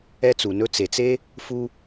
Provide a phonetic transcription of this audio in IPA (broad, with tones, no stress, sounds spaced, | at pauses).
ɛ˦ t͡s u˩ n ɵ˦ t͡s e˩ t͡s e˥ | f u˦